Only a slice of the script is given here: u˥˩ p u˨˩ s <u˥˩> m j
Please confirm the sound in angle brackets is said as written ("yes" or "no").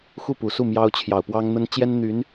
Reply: yes